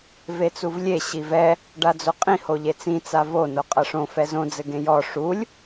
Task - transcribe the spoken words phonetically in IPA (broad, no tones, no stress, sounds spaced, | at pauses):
v e t͡s u v lʲ e ɕ i v ɛ | ɖ a d͡z o qʼ ĩ h o ʎ e t͡s ĩ t͡s a v o n o qʼ ɐ ʂ õ f ɛ z õ d͡z ɘ ɡ ẽ j ɔ ʂ u lʲ